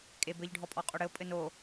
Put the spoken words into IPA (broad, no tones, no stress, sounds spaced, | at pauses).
kʼ e b ɘ ʎ ɖʱ ɔ pʼ ɔ qʼ o ɽ ɘ o̯ pʼ ɘ n o